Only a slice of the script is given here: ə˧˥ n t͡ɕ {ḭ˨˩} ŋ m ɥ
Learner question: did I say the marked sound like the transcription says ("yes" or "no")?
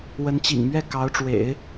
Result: yes